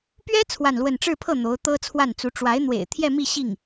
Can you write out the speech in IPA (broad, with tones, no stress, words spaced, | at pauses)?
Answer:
pɥɛ˥ t͡sʰwa˥˧nlwə˥˧n ʈ͡ʂɻ̩˥˧pʰɤ˥˩ n̪o˧˥ʊ̯ t̪ɤ˥ t͡sʰwa˥˩nt͡su˧˥ ʈ͡ʂwa˧˥ɪ̯n̪wḛ˨˩ɪ̯ t̪ʰjɛ˥˧mi˥˧ ɕi˥˩ŋ